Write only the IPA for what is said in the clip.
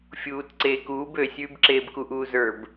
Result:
fʲ uː t ǀ eː k uː b ø sʲ ʉː b ǁ eː b k u ʔ uː z ə˞ b

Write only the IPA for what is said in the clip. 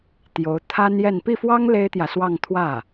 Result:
t̪ j o˧˥ ʊ̯ t̪ʰ a˥ n j ɛ˥˧ n p i˥˩ f w ɑ˥ ŋ l e˥ ɪ̯ t̪ j ä˨ s w ɑ˥˧ ŋ t̪ʰ w ä˥˩

